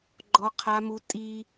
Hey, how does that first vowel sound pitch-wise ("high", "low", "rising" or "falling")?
high